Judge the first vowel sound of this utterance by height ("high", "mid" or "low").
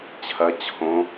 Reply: low